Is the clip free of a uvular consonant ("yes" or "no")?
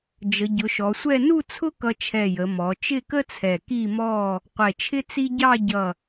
no